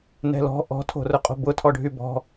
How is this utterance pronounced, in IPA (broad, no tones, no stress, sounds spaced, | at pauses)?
n ɛ̤ l ɔ̤ ʔ ɔ̤ tʰ o̤ r ʊ qʼ o̤ b ʊ tʰ ɔ ɖʱ y b ɔ̤